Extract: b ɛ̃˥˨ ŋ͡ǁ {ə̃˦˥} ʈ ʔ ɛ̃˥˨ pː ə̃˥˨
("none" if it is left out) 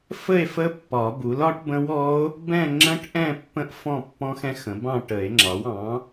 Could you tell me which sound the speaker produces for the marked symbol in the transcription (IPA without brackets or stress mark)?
ə̃˦˥